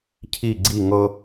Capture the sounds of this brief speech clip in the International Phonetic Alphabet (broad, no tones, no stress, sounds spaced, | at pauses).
cʰ i ɡ͡ǀ i ŋ ɤ